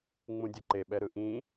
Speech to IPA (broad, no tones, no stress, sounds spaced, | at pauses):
ŋ͡m ũ dʲ ʌ ǃ e ɓ ɛ ɾ ɯ ʔ ĩ